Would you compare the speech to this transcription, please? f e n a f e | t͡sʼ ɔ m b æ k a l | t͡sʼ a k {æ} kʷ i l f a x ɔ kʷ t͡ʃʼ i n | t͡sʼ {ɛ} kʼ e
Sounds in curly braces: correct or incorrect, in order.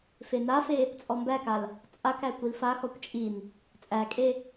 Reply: correct, incorrect: æ

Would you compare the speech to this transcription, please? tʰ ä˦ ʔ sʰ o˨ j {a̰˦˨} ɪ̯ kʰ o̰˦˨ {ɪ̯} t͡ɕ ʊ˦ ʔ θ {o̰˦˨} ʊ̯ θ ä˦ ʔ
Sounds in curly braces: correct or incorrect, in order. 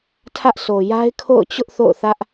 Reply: incorrect: a˦, incorrect: ʊ̯, correct

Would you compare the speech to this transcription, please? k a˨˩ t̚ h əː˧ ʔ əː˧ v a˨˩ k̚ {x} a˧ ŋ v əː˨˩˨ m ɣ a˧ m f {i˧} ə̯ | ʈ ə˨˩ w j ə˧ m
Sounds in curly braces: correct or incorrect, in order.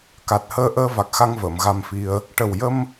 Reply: correct, correct

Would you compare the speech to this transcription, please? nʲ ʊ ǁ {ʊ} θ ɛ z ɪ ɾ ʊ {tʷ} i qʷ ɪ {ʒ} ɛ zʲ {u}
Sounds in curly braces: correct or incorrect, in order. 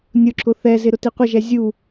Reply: correct, incorrect: t, correct, correct

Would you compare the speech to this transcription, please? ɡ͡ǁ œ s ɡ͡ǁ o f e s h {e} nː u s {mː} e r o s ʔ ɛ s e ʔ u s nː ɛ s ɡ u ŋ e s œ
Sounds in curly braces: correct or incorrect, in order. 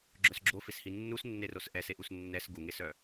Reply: incorrect: i, incorrect: nː

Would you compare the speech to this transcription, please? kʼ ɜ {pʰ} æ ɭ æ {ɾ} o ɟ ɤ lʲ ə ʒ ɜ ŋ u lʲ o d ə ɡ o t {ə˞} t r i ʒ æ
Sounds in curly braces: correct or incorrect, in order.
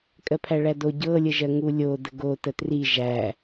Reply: correct, incorrect: d, incorrect: ə

